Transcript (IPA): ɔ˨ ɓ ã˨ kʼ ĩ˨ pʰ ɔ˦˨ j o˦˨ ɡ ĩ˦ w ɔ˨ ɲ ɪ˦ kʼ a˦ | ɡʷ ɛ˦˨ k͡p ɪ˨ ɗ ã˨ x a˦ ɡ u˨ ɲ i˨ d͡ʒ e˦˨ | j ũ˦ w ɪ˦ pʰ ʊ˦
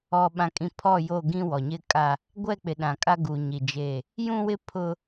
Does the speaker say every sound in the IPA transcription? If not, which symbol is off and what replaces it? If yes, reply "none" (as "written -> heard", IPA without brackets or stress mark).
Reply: x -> kʼ